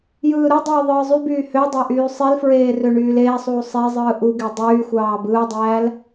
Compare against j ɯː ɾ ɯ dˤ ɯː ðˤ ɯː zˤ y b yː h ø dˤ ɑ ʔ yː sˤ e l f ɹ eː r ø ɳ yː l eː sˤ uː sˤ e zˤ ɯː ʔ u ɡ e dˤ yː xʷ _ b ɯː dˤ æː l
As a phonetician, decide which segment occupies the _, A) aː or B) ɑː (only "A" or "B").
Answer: B